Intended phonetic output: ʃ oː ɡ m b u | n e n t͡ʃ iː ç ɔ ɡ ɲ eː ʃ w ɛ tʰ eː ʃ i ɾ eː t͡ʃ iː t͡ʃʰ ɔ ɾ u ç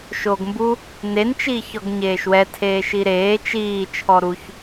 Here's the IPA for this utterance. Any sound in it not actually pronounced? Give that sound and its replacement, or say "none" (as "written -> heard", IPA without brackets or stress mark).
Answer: none